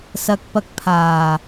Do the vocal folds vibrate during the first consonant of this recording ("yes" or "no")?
no